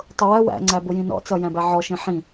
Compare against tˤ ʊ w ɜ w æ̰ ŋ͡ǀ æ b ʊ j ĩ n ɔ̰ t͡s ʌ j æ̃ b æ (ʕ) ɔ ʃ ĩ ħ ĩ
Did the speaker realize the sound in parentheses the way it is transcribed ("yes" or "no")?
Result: yes